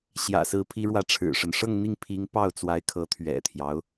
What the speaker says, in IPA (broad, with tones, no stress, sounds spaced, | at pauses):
ɕ j ä̰˨˩ s ɹ̩˧˥ pʰ i˧˥ ɻ w ä˧˥ ʈ͡ʂʰ ɻ̩˨˩ ʂ ə˦ n ʂ ɤ˥˧ ŋ n̪ i˥˩ ŋ pʰ i˧˥ ŋ p ɑ˥˩ ʊ̯ t͡s w a˧˥ ɪ̯ kʰ ɤ˧˥ t̪ʰ ɥ ɛ̰˨˩ t̪ʰ j ɑ˦ ʊ̯